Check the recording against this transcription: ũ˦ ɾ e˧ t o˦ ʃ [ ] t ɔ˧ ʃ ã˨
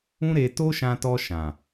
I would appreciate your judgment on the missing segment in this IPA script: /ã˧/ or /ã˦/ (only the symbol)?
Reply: ã˧